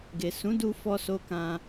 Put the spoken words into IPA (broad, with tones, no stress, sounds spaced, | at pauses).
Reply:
ɡ e˨ s ũ˨˦ d u˧ f ɔ˧ s o˧ k ã˧